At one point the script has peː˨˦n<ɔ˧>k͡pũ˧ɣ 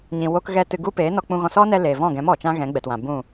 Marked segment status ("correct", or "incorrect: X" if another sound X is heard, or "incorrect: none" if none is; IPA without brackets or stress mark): correct